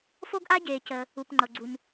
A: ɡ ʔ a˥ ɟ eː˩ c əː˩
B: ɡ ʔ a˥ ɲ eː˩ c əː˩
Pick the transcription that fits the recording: A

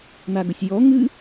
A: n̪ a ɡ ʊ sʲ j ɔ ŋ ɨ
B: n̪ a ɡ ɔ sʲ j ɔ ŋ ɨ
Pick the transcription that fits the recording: A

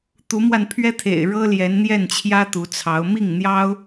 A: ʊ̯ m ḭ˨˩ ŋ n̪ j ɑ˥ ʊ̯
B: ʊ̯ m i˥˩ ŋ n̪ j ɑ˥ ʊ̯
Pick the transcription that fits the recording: B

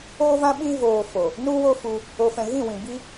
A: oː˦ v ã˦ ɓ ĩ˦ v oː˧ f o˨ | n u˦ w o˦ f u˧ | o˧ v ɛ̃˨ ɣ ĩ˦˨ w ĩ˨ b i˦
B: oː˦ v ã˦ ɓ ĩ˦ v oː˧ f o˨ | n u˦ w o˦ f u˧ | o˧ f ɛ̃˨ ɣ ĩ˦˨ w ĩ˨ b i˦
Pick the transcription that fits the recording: B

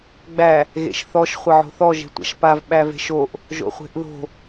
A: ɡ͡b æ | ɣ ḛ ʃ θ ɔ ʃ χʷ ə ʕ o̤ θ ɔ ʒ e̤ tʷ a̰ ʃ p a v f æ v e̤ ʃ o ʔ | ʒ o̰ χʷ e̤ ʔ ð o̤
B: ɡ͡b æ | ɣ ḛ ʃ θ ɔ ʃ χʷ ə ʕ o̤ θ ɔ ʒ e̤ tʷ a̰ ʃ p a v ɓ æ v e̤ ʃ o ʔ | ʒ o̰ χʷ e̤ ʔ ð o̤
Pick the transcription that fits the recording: B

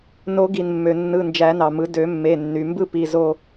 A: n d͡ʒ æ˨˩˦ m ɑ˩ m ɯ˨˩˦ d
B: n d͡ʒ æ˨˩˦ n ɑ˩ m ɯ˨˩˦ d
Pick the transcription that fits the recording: B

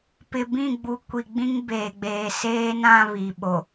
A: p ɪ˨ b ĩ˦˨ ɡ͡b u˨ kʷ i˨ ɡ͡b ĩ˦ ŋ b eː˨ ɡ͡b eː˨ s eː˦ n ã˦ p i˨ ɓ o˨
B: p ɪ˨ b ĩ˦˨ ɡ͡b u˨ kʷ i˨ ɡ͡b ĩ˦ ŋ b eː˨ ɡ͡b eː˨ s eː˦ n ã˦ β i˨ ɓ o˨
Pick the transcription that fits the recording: B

